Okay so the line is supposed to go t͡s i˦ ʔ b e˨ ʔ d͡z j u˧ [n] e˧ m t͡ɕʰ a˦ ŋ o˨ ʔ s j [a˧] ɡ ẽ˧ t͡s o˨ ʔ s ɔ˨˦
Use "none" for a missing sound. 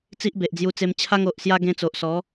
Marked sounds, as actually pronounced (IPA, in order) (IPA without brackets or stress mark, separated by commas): t͡s, a˦